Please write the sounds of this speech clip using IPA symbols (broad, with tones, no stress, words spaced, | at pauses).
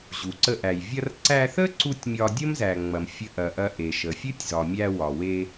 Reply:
ʑu˩ǀə˧ʔæ˩j vʲɐ˧rǀæ˧θə˥ ǀu˥tʲmʲɒ˧ dʲə˥mzæ˩ ŋ͡mɐ˩m fʲə˧ʔɐ˩ʔɐ˧ ʔe˩ʃə˩ fʲɨ˥tʲzɒ˩ mʲæ˧wɒ˩we˧